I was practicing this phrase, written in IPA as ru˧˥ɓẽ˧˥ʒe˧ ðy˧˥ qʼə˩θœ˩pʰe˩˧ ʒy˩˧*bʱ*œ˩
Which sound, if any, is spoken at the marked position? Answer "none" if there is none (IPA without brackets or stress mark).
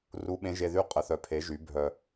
bʱ